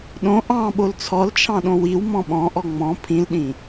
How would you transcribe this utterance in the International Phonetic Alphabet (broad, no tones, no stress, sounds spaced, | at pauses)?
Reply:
ɗ õ ʔ ɑ̃ ɓ o l t͡sʰ ɔ l t͡ʃʰ ɑ̃ ɗ õ w i w m ɔ̃ ɓ ɔ̃ ʔ ɔ ŋ͡m ɔ̃ pʰ ĩ l ɗ ĩ